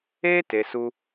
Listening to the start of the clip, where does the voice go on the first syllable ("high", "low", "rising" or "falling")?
high